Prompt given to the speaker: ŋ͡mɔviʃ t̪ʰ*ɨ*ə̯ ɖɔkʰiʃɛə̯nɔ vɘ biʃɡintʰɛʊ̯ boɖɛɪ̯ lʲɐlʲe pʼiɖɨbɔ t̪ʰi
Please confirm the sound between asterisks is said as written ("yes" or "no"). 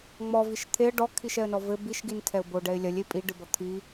no